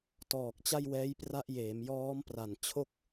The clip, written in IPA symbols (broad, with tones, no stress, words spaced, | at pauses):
tɔː˨˩k̚t͡ɕa˥˩jwɛː˦˥j pra˦˥ʔjeː˩˦m jɔː˦˥mpra˨˩nt͡ɕʰo˥˩k̚